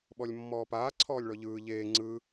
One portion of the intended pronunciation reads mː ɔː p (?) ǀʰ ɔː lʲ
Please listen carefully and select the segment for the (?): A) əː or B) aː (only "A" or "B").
B